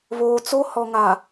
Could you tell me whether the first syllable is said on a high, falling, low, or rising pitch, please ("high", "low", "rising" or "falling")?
low